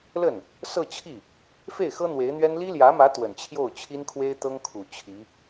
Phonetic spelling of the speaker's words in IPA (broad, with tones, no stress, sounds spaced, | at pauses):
l ə˥˩ n | s ɤ˥˧ t͡ɕʰ i˥˩ | f e˥˩ ɪ̯ x ɤ˥ n̪ w e˧˥ ɪ̯ n̪ ɥ ɛ˥ n l i˥ l j ä˧˥ m ä˧˥ t̪ w ə˨˩ n t͡ɕʰ j o˥˩ ʊ̯ t͡ɕʰ i˥ n kʰ w e˥ ɪ̯ t̪ ɤ˥ ŋ kʰ u˨˩ t͡ɕʰ i˧˥